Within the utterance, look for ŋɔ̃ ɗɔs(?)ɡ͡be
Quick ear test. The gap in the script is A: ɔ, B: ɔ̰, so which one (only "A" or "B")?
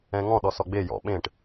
A